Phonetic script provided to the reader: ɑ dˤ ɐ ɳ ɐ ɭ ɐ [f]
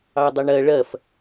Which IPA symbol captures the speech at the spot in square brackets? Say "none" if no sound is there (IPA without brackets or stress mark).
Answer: f